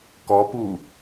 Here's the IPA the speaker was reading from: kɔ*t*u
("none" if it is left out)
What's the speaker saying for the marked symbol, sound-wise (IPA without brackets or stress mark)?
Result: p